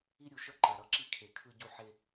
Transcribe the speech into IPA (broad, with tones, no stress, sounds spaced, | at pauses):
i˦ ɾʲ u˨ ʃ ʌ˦ ǃ a˨ ɾ ʌ˦ ǁ i˦ kʰ e˨ kʰ ɯ˦ ɟ u˦ ħ e˦